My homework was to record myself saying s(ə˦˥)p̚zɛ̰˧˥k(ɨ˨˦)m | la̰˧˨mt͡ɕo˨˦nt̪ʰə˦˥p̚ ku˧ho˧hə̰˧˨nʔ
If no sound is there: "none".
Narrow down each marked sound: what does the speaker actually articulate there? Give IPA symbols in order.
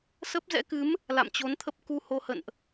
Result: ə˦˥, ɨ˨˦

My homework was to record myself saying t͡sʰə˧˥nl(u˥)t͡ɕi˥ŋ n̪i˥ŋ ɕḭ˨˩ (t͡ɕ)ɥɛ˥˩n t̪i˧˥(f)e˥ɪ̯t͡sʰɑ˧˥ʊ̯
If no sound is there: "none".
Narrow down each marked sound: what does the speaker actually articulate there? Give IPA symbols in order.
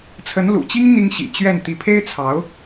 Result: ṵ˨˩, t͡ɕ, pʰ

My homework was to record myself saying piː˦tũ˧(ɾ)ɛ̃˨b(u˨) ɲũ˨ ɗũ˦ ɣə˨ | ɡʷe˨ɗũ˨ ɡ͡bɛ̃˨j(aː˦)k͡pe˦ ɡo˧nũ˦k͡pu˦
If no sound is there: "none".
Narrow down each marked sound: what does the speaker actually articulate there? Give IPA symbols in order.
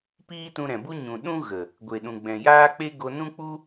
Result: ɾ, u˦, aː˦

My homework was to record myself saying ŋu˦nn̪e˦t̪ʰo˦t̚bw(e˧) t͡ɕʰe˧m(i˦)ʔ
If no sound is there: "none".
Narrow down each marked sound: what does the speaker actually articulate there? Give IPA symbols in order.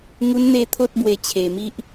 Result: e˧, i˦

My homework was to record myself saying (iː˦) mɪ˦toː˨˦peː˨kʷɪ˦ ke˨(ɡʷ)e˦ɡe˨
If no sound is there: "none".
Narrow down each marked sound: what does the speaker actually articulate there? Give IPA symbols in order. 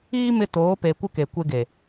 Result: iː˦, kʷ

